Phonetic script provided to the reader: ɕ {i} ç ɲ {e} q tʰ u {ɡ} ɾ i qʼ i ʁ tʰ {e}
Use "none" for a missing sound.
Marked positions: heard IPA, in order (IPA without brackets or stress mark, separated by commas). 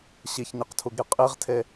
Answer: i, i, ɡ, e